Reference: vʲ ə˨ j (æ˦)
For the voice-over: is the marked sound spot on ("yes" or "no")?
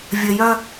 no